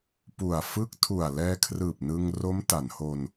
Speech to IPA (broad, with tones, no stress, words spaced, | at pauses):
pu˨˩a̯ fɯ˦˥k̚tʰu˨˩a̯ lɛː˧kʰrɯː˨˩p̚ nɯ˧ŋ ro˦˥mta˩˦nho˧n